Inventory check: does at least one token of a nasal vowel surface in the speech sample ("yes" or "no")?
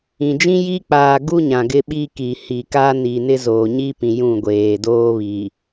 yes